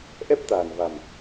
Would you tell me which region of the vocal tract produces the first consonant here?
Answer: throat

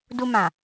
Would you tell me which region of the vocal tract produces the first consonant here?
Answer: tongue tip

